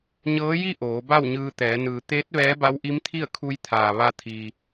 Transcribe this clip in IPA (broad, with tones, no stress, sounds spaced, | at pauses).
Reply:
ɲ ɤː˧˥ j i˥˨ ʔ oː˩˧ b a˥˨ w ɲ ɯː˧ t̪ ɛː˩˧ n ɯː˩ t̪ eː˧˥ t̚ ʋ ɛː˧˥ b a˧˥ w ʔ i˧˥ m t̪ʰ i˥˨ ə̯ kʰ u˧ j t̪ʰ aː˩ ʋ a˧ t̪ʰ iː˩